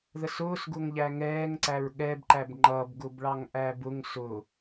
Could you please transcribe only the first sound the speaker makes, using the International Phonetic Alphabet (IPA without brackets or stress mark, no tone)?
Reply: ð